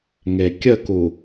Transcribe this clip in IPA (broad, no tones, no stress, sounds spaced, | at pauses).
ŋ e kʲ ə k u